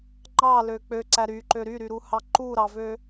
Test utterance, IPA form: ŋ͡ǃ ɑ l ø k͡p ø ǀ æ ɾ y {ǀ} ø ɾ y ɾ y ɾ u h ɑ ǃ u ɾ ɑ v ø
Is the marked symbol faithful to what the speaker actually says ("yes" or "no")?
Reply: no